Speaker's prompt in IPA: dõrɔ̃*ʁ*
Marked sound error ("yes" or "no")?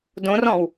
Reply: yes